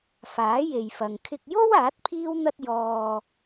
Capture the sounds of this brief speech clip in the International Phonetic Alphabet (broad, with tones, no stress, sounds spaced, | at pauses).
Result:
f aː˨˥ j e˨ j f ɐ˨ ŋ kʰ ɪ˧ k̚ j o˥ w aː˨˥ t̚ pʰ iː˥ w n̪ ɐ˥ t̚ j ɔː˧